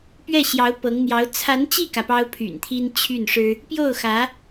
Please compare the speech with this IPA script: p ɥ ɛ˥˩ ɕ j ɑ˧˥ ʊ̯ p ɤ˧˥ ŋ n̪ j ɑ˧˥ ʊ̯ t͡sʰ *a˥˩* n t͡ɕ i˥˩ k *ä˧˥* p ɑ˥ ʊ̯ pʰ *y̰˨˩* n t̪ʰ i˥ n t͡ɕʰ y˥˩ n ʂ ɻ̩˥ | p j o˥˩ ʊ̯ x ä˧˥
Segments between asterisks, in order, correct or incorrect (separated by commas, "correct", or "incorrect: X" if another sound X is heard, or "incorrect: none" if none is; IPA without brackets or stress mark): incorrect: a˧˥, incorrect: ä˩, correct